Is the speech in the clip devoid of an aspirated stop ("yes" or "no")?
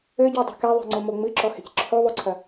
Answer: no